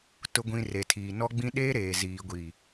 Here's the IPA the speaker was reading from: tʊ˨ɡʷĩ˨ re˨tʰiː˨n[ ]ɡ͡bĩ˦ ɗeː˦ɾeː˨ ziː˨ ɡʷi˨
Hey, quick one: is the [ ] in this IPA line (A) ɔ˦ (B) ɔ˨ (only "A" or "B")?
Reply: A